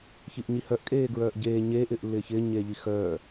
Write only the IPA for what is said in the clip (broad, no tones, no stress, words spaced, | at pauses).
çiʔɲihœʔ kʼeːɡɹœːʔɟeː ɲeːʔ ɪːʔlːɪːçɪː ɲeːʎixœː